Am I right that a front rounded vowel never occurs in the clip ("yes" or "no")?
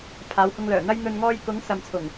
no